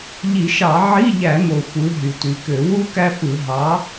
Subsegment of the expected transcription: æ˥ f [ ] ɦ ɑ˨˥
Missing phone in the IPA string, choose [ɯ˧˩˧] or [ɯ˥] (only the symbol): ɯ˧˩˧